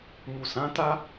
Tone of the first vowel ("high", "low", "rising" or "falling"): low